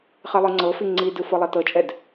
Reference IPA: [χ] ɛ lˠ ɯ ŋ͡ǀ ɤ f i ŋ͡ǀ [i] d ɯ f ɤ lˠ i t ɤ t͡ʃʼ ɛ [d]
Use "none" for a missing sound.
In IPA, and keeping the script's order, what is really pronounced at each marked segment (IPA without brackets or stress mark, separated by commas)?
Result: χ, i, d